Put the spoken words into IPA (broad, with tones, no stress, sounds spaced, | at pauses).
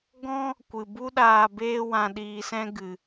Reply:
ɡ ɔ̃˦ | kʷ ɨ˨ b u˦ ɗ aː˧ b eː˦ w ã˧ ɗ iː˧ s ɛ̃˦ ɡ ɨ˨